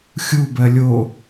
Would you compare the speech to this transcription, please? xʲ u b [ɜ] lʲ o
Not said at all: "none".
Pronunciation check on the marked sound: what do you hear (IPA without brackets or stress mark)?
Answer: ɜ